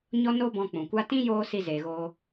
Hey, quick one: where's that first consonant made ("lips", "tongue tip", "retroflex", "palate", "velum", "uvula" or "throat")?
palate